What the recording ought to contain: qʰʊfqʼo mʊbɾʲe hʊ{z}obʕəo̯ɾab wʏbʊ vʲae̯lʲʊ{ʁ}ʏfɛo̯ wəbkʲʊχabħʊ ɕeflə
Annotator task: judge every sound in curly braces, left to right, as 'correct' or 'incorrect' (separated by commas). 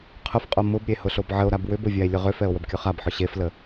incorrect, correct